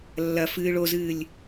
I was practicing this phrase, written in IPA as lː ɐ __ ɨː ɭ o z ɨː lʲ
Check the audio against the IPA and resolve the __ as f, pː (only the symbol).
f